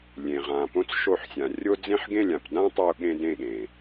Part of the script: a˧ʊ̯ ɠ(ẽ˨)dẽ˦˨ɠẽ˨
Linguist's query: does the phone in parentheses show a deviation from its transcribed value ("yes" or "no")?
yes